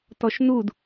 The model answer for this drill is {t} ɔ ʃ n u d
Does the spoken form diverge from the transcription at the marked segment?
no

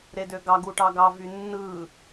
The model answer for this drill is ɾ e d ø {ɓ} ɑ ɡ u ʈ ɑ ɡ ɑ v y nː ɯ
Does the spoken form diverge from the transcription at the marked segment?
yes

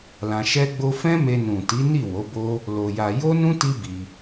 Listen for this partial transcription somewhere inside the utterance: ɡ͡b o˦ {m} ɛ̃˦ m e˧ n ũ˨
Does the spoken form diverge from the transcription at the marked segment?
yes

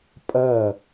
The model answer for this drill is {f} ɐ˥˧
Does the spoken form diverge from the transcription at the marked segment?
yes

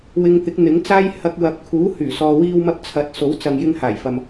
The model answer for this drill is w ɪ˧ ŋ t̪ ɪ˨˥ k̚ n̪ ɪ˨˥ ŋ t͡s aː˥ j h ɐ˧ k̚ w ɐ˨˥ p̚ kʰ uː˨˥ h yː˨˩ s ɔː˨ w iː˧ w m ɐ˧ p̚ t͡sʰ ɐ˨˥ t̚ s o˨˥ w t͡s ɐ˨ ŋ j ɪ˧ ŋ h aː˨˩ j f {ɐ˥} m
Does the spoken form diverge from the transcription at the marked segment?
yes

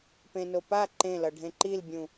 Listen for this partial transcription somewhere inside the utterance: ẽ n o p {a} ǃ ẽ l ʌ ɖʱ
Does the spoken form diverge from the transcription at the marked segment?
no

